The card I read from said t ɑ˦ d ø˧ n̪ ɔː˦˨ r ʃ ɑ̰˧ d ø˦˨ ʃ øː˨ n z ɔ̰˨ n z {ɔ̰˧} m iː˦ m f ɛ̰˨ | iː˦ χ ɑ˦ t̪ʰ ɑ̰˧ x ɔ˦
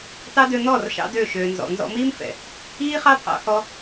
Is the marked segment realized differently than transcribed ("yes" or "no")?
no